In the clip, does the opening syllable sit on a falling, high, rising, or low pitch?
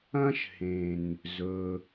high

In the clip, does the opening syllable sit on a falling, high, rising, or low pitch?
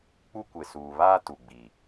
high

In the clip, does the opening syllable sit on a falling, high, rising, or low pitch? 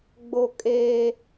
high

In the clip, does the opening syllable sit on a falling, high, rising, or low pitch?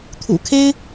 low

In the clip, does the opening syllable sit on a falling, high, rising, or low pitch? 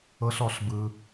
high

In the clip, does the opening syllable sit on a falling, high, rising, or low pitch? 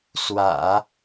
low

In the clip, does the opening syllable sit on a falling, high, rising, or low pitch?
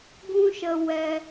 high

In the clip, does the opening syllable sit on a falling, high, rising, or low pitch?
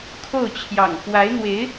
falling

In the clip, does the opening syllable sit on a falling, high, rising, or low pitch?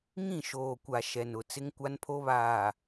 falling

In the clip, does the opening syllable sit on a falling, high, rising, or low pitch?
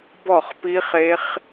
falling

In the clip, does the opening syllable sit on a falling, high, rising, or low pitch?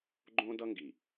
high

